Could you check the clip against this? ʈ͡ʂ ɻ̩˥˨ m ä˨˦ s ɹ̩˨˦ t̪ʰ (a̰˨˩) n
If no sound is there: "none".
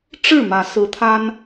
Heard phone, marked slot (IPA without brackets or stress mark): a˦